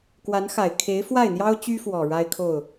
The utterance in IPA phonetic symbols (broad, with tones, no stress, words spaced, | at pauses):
kwa˧˥nxa˨˩ɪ̯ kʰe˧˥ɪ̯fwa˥˩ɪ̯n̪jɑ˥ʊ̯ t͡ɕy˥fwɔ˨˩ ɻa˥ɪ̯kʰo˥˩ʊ̯